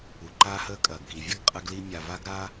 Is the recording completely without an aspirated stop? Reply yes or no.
yes